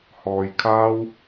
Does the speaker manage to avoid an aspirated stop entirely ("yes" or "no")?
no